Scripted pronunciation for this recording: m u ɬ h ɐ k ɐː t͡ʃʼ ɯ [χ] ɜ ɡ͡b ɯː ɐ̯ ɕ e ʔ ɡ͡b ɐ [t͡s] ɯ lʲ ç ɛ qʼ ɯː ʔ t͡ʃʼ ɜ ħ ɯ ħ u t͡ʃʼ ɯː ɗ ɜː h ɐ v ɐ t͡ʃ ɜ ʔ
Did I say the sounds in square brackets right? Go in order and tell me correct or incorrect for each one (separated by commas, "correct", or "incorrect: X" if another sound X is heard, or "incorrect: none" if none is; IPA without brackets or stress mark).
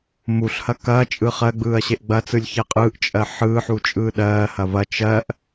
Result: correct, correct